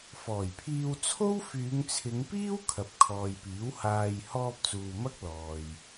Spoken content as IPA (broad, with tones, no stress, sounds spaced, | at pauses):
f ɔː˨˩ j pʰ iː˧ w t͡sʰ o˥ w f yː˨˧ ŋ t͡sʰ ɪ˨˧ ŋ p iː˥ w kʰ ɐ˨ p̚ kʰ ɔː˨ j p iː˨˥ w h aː˧ j h ɔː˧ p̚ t͡s uː˨ m ɐ˥ k̚ l ɔː˨ j